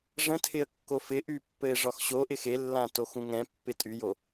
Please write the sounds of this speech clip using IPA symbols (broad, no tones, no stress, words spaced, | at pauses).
ʐə̃tʰɪə̯kːo fɪʔypːɘɪ̯ʐɒx ɕoʔɪ xelːãtoxũŋ ɛ̃pːɪ tʼyjo